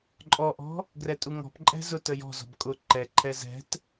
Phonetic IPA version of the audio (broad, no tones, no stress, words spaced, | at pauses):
ǃʼɔʔɔ̤ | ɡrɛtʼuŋɔ̤pǃʼɛ̤ zʊt əjɔ̤zɔ̤b kʼʊ ǃɛǃʰɛ zɛ̤t